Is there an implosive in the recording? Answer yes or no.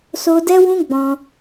no